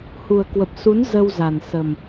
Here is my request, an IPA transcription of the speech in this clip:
h u˨˩ ə̯ k w ə˨˩ p̚ s u˨˦ n z ə˧ w z a˨˩ n s ə˨˩ m

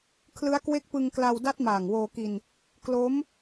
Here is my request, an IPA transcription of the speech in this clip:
kʰ l ɯ˦˥ a̯ k w e˦˥ k̚ p ɯ˧ ŋ k l a˧ w d a˦˥ t̚ m aː˨˩ ŋ w oː˧ k i˧ n | k l o˦˥ m

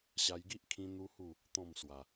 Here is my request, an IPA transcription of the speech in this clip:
ɕ a˧ j ɡ i˦ ʔ kʰ ĩ˧ n̪ u˦ h u˥˧ | t̪ ɔ̃˥˧ m s w a˧

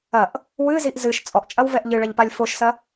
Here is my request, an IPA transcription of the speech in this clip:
ɐ ʔ | w ɨ z i ʔ z ɨ ʃ t͡sʼ ɔ ʔ t͡ʃʼ ɐ w v ɛ ʔ ʎ ɨ ɭ ɐ ʎ p a lʲ f o ʃ s ɐ

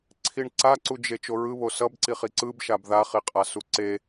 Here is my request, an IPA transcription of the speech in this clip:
ǀʰ i ɳ ǀ a ǀ u d͡ʒ e t͡ʃ o ɹ ɯ β o s ʌ b ǀ i χ i ǀ ɯ b ʃ a b ð a χ i qʼ a s u ǀ e

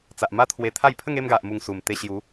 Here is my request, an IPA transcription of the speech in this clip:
t͡s a˨ ʔ m a˦ t̪ʰ w e˧ t̪ʰ a˥˧ j pʰ ə˥˧ ŋ e˥˧ m ɡ a˨ ʔ m u˨˩ ŋ s u˨˩ m t̪ e˧ ɕ j u˨˦

